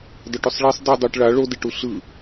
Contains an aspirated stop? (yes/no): no